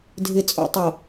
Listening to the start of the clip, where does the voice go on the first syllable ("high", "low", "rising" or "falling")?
low